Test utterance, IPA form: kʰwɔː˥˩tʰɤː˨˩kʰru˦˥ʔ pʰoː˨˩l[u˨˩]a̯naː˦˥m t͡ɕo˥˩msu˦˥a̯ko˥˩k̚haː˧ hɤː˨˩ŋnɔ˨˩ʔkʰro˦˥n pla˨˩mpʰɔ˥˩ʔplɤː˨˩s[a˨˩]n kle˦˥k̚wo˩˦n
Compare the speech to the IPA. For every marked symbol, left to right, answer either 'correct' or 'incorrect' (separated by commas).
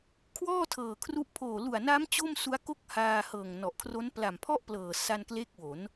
correct, incorrect